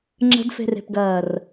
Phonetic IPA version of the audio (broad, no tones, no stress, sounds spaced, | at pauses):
ŋ͡ǁ ə̤ d f e̤ r e̤ p ɡ ɐː r